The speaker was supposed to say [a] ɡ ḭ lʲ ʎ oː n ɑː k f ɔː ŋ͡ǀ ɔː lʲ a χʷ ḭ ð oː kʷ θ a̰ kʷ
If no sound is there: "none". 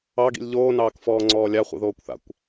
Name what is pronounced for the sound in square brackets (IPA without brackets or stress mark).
ɑ